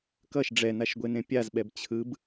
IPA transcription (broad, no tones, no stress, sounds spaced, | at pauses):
k ʌ ʃ ɖ͡ʐ ɛ n a ʃ ɡʷ e n ẽ pʲ a z ɓ ɛ b t͡ɕʰ ɯ b